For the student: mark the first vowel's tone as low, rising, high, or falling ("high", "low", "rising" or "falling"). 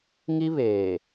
high